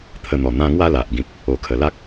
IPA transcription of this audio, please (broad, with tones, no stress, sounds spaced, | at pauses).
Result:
t̪ʰ ə˧ n̪ ɔ˨˩ n̪ ã˧ ŋ w a˥˧ l a˨ ʔ ɡ ĩ˨ p̚ | o˨˩ kʰ ə˨˩ l a˦ k̚